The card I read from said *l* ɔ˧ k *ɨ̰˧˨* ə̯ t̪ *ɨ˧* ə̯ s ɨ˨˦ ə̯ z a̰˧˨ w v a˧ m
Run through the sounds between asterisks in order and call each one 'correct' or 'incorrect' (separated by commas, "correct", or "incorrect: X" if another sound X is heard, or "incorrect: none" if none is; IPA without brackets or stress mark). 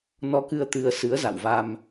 incorrect: n, incorrect: ɨ˧, correct